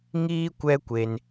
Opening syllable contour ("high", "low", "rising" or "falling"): high